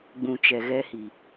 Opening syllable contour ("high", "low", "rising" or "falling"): low